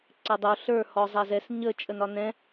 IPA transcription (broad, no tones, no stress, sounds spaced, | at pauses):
ǀ æ dˤ o ɬ ə˞ h ɔ zˤ æ z ɛ s ɲ ə t͡ʃʼ ə n ɒ n ɛ̃